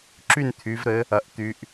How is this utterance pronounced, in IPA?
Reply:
ǁ y˥˩ n t̪ʰ y˩˧ v ɾ ɘ˩˧ | ɐ˩˧ ʔ t̪ y˩˧ ʔ

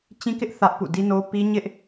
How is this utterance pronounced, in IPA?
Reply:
t͡ɕ ĩ˦ k ɪ˦ ʔ θ ä˦ ʔ p ṵ˦˨ d i˦ n o˦ p i˦ ɲ ɪ˦ ʔ

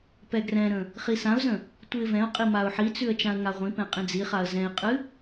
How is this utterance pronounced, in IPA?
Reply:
p ɛ ɡ r ɛ̃ ɾ ə̃ | χ i s ã ʊ̯ z ə̃ | tʷ ɨ ɪ̯ v ɛ̃ ʊ̯ qʼ i m a ʊ̯ ħ i t͡s ʉ ə̯ t͡ʃ ã ə̯ ŋ a ʁʷ ĩ p ɛ̃ qʼ ĩ d͡z i χ a ə̯ z ɛ̃ ɪ̯ qʼ ɨ

